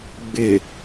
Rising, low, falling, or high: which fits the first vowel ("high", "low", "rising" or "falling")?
low